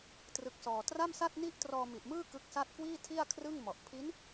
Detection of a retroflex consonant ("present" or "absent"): absent